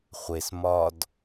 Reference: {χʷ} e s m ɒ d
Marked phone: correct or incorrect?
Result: correct